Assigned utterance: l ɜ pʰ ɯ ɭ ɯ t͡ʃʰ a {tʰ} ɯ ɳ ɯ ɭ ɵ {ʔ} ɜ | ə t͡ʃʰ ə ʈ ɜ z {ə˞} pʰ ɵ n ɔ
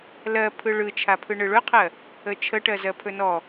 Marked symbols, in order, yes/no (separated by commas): no, no, no